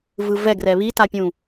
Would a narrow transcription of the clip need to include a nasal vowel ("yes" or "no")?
yes